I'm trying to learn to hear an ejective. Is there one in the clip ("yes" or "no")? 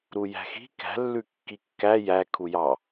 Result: no